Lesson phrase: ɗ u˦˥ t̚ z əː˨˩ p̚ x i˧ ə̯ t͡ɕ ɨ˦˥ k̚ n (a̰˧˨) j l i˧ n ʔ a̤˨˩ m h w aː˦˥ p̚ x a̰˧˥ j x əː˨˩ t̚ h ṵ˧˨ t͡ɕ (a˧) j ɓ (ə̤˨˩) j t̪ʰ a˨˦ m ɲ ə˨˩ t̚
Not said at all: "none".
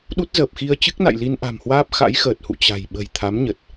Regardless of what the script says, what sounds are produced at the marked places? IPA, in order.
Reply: a̰˧˨, a̤˨˩, ə̤˨˩

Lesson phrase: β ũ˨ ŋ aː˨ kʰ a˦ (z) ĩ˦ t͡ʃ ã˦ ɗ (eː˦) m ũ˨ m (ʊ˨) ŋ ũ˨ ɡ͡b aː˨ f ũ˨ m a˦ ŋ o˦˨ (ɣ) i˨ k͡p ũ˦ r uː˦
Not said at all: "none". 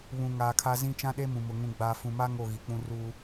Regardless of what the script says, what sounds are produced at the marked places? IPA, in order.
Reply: z, e˦, ʊ˨, ɣ

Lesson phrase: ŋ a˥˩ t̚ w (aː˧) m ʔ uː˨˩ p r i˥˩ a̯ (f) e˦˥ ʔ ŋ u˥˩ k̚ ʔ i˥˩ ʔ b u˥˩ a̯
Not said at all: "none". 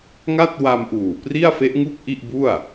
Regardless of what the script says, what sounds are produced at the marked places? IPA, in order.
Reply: a˧, f

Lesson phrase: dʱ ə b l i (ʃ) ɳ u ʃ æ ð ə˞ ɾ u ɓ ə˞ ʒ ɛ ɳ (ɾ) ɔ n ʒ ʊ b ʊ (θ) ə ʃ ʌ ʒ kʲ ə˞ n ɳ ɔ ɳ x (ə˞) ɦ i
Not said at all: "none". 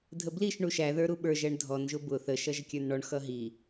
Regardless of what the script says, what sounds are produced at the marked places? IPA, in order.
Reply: ʃ, dʱ, θ, ʌ

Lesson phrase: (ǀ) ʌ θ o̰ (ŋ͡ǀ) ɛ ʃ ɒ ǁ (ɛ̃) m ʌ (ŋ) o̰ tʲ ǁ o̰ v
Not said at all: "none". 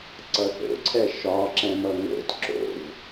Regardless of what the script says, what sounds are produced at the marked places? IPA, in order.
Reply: ǀ, ǀʰ, ɛ̃, ŋ

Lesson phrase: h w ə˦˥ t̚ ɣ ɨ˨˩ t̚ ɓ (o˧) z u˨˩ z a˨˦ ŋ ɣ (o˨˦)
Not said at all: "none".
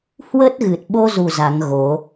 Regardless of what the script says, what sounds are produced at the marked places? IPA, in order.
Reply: o˧, o˨˦

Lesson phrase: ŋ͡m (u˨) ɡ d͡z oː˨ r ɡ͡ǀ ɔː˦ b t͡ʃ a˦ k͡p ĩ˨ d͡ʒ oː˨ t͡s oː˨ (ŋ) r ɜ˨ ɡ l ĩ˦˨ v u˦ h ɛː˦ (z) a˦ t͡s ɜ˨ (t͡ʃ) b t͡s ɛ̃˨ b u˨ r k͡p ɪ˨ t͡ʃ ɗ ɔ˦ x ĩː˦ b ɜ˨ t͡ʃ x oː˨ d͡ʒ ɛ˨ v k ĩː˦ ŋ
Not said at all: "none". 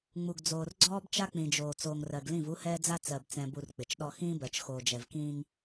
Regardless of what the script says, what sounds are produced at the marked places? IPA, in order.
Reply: u˨, ŋ, d͡z, none

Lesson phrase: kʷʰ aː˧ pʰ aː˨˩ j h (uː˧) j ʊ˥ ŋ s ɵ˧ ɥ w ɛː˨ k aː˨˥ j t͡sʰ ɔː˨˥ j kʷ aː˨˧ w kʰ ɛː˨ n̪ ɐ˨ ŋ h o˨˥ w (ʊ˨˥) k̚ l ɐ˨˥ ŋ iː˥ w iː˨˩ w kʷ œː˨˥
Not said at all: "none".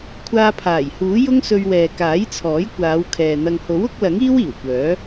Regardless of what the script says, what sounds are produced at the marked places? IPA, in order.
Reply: uː˨˥, ʊ˨˥

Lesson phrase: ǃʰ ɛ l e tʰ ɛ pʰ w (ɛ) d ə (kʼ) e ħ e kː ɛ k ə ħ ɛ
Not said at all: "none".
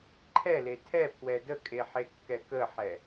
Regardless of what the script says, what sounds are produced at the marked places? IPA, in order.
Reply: ɛ, kʼ

